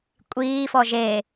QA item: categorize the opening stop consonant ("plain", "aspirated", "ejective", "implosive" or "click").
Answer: ejective